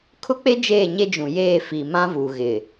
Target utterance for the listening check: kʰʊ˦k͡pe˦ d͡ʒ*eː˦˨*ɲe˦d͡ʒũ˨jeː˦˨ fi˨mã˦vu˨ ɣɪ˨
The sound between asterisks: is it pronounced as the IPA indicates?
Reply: yes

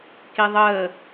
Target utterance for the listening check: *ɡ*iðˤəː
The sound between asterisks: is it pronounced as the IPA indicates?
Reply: no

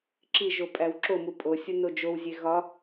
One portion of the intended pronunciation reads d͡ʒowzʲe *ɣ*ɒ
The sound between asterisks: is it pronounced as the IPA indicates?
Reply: yes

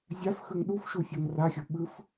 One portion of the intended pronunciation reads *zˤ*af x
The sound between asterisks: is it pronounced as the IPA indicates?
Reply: no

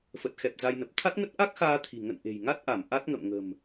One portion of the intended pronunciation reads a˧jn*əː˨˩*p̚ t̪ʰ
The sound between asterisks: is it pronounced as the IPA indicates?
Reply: no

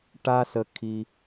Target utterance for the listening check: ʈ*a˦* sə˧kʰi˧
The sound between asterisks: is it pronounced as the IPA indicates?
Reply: yes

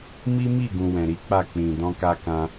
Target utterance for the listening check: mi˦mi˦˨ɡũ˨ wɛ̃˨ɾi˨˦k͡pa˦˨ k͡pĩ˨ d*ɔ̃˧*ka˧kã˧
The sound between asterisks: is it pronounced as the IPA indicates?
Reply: yes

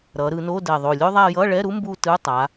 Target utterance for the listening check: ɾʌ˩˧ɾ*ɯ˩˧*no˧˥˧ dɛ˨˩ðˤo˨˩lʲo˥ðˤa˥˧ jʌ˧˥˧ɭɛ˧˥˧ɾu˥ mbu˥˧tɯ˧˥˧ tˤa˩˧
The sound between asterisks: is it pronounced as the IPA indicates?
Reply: yes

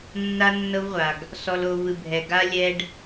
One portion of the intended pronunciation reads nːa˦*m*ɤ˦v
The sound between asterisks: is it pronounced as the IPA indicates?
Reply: no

